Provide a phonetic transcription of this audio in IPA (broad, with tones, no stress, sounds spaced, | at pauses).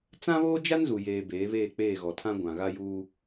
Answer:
t͡s ã˦ β oː˦ d͡ʒ a˦ n z u˨ j eː˨ b eː˨˦ β eː˦˨ k͡p eː˦˨ ɣ ɔ˨ tʰ ã˦ ɡʷ ã˨ ɣ a˦ j uː˦